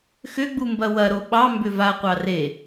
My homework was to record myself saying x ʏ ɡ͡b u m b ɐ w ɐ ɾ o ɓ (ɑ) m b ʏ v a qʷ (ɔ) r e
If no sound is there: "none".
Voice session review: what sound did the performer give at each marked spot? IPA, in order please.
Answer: ɑ, ɑ

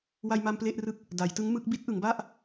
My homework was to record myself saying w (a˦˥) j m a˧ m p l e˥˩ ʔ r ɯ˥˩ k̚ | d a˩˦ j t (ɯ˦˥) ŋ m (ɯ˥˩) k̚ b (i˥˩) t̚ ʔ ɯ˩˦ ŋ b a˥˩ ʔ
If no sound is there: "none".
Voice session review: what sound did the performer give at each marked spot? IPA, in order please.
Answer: a˧, ɯ˦˥, ɯ˦˥, i˦˥

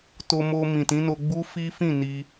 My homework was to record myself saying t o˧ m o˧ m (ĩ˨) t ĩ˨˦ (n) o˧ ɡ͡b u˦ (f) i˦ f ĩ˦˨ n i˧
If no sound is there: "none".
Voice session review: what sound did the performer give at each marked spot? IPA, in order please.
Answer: ĩ˨, n, f

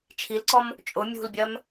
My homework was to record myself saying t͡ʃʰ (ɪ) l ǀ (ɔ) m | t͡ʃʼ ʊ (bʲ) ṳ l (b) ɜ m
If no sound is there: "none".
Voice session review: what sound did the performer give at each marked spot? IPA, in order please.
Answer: i, ɔ, mʲ, bʲ

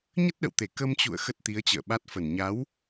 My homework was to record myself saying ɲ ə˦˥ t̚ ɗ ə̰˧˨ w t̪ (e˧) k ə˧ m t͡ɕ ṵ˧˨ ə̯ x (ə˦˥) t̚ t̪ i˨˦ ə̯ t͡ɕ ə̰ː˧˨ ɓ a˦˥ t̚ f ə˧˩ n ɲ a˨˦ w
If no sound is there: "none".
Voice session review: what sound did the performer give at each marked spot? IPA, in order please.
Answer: e˧˩, ə˦˥

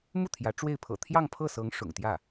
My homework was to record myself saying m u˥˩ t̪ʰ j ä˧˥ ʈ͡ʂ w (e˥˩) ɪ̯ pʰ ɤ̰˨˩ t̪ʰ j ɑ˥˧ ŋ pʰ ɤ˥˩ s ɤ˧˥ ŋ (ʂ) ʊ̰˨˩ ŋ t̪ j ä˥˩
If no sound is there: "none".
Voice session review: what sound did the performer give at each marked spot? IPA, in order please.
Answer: e˥˩, ʂ

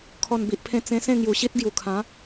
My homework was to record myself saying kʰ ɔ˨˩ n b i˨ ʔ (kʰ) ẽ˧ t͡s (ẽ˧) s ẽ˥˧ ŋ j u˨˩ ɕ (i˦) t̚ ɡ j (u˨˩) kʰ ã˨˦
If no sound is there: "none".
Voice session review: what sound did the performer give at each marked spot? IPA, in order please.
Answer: pʰ, ẽ˧, i˦, u˨˩

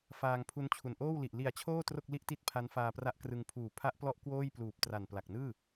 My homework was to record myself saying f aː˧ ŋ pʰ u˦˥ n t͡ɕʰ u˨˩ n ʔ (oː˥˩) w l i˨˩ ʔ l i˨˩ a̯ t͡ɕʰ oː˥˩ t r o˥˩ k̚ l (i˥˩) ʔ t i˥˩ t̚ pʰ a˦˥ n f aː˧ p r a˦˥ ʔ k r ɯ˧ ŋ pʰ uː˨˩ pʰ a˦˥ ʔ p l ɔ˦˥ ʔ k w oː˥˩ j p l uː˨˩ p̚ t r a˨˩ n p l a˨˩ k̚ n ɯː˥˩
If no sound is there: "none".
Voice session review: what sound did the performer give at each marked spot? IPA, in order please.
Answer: oː˥˩, i˥˩

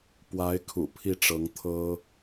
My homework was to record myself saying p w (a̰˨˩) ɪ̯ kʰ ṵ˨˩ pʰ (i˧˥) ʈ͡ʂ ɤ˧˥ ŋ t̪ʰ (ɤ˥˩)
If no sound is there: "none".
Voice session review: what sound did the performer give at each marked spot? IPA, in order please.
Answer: a˧˥, i˥˩, ɤ˥

